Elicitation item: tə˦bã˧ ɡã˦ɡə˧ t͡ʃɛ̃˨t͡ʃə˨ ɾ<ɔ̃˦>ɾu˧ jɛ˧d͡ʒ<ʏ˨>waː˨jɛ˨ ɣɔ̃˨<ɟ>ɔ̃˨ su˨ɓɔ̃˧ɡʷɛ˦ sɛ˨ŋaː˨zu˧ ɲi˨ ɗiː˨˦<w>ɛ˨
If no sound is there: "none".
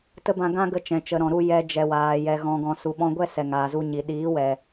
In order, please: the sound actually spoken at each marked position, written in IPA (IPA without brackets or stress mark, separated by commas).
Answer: ɔ̃˨, ɛ˨, ɡ, w